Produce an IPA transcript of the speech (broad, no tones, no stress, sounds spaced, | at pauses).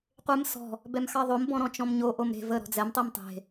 qʷ e m s ɔ̤ | b ɛ m x ɑ ðˤ o m b ɔ̃ ɾ ɔ̃ t͡ʃ ɔ̃ m ɲ o ʔ o m ɾ e̤ v ə ɾ ɔ̤ d͡z ɛ m tˤ i m tˤ e̤